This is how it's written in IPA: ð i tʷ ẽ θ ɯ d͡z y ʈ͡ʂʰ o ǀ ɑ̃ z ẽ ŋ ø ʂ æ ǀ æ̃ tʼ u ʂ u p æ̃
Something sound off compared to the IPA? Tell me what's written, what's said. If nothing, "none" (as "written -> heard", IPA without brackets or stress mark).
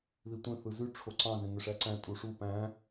d͡z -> z